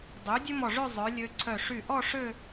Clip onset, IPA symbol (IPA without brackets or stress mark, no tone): dˤ